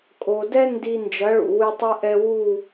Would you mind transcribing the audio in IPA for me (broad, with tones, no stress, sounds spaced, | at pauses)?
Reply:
kʼ o˨ d ɛ˦ n d i˧ n d͡ʒ ɐ˨˦ ɭ ṵ˨ w ɨ˧ tˤ ɨ˧ ʔ ɛ˧ w u˦˨